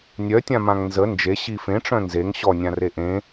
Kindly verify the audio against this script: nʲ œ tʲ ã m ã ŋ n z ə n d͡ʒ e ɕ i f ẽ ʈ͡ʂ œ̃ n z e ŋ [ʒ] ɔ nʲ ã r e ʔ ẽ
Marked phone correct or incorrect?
incorrect